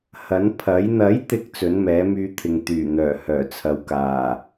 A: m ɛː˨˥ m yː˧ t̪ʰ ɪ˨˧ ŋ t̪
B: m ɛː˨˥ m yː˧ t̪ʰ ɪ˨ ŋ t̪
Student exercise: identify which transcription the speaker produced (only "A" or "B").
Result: B